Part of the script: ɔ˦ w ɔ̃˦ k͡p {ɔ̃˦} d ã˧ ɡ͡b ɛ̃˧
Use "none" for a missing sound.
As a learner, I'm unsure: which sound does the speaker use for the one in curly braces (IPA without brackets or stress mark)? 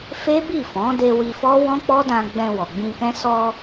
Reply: ɔ˦